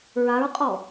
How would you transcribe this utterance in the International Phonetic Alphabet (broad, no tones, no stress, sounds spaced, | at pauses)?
ɹ a ɹ qʼ ɔ